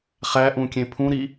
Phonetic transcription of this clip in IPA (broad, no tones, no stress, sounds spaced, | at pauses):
χ æ ʔ ũ kʲ ẽ pʰ ũ ɾ i